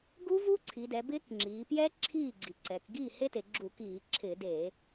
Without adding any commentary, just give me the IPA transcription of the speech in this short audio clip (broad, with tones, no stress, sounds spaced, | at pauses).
ɡ u˦˥ v u˦˥ ǀʰ i˩˧ d ɛ˩˧ b ɪː˦˥ k ŋ͡ǁ iː˩˧ p j ɛ˦˥ ǁʰ iː˥˩ ɡ͡ǀ i˩˧ ǀ ɛ˩˧ k ɡ iː˥˩ h e˦˥ t e˩˧ ɡ͡ǁ u˧˩˧ k iː˧˩˧ ǁʰ ɪː˧˩˧ d e˧˩˧